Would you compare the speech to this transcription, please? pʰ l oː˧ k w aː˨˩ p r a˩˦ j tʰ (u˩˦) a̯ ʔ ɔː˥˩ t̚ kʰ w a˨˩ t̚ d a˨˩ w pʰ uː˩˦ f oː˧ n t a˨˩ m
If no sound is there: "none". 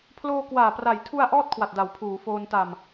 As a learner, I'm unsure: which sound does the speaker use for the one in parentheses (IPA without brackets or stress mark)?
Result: u˧